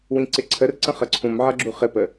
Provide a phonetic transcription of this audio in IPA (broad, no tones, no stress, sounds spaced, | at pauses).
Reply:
w ĩ ǀ ɪ ǀʰ ə r ǀ ə̃ χ ə ǀʰ ũ m ʕ ʌ ɡ͡ǁ u χ ɪ p ə